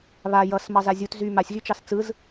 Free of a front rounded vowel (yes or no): no